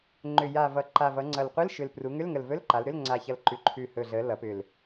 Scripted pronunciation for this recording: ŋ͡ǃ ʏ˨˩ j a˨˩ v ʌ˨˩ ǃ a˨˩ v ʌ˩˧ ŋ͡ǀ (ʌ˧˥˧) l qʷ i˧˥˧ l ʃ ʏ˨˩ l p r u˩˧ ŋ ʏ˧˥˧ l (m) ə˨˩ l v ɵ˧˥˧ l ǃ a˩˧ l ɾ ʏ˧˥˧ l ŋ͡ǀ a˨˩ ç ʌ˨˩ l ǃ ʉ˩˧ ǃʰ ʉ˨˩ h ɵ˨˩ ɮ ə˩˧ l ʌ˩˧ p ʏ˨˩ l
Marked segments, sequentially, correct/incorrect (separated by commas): incorrect, incorrect